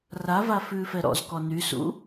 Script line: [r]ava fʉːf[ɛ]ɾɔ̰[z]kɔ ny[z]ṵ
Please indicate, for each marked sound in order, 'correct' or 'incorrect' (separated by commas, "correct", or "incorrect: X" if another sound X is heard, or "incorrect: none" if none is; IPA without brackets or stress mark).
correct, correct, correct, incorrect: s